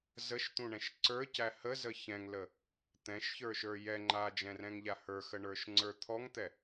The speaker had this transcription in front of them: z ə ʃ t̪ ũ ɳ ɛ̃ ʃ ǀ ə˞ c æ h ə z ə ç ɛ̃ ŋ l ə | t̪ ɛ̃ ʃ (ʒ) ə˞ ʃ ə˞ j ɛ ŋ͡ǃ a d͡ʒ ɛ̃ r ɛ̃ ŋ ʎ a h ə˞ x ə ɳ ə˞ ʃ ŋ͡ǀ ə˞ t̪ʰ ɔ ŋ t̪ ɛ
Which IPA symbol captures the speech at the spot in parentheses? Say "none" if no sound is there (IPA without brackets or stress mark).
ç